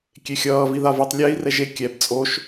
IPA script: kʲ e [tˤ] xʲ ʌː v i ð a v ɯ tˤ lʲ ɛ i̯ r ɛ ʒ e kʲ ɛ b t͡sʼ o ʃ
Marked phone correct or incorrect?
incorrect